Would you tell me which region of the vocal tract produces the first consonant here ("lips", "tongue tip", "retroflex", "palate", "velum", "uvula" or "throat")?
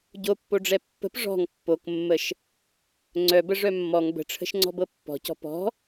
palate